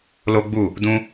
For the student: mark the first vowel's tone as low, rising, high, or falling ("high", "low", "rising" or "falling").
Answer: high